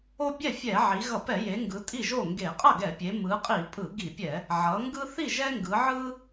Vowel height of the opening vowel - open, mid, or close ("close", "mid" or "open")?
mid